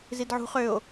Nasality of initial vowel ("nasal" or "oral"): oral